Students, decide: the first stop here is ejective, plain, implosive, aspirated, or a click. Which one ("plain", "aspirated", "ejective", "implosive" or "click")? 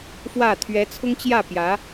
aspirated